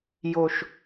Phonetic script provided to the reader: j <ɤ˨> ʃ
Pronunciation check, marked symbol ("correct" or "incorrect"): incorrect